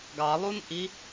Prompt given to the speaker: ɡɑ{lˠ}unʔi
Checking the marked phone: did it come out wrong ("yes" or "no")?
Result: no